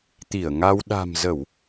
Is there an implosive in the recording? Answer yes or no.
yes